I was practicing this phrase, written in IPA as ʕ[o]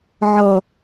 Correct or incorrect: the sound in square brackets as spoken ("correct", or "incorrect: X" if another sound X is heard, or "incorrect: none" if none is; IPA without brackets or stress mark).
incorrect: ɤ